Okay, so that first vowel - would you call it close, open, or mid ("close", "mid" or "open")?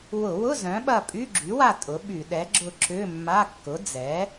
close